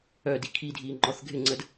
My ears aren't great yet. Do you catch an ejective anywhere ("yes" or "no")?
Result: no